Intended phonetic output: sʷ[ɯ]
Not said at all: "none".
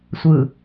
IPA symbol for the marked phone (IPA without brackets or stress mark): ɯ